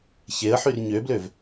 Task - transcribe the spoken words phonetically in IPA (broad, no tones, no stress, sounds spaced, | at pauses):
ç e ə̯ ħ y r ɲ ø b l ø v